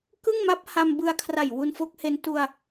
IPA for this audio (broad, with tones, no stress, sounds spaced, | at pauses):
k ɯ˥˩ ŋ m a˦˥ p̚ h a˧ m b ɯ˧ a̯ kʰ r a˨˩ j w u˧ n f o˦˥ k̚ h e˦˥ n t u˧ a̯